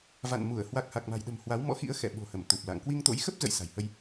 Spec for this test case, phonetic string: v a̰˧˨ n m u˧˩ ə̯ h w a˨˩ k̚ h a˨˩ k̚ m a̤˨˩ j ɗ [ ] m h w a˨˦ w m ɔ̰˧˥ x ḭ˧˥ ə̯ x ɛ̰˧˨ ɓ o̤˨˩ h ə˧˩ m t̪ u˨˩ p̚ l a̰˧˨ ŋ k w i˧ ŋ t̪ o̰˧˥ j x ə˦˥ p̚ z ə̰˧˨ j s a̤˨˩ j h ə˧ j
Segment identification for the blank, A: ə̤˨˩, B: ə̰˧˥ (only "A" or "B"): A